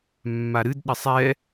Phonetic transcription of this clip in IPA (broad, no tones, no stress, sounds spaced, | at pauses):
mː a ɾ ɨ d ɗ ɘ sˤ ɛ